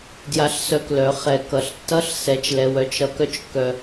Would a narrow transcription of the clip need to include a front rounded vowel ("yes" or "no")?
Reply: yes